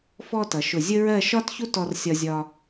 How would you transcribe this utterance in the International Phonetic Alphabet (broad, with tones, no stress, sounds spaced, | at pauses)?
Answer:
f ɔ˥ t ʌ˩˧ ʃ ʊ˧˩ zʲ ə˥ ɹ ɜ˥˧ ʃ ɒ˥ t ç u˥ t ɔ˧ r sʲ ɒ˧ zʲ ɒ˧